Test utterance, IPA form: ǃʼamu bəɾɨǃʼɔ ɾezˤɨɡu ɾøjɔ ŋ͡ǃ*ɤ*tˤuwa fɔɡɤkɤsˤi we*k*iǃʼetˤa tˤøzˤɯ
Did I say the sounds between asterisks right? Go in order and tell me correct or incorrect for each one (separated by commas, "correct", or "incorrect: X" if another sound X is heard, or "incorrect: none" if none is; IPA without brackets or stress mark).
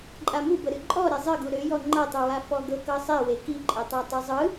correct, correct